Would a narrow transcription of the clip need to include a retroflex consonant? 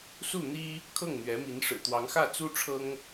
yes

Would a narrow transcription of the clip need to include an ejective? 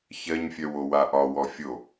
no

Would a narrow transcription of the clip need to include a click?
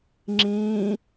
yes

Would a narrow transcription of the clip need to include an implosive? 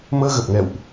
no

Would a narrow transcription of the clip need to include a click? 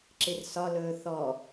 yes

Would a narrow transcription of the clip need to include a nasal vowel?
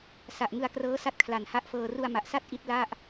no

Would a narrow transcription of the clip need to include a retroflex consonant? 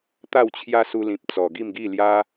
no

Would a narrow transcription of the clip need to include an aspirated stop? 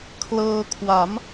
yes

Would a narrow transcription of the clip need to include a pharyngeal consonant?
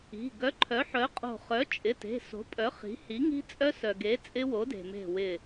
yes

